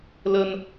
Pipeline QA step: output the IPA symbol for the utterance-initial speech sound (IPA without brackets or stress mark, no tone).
l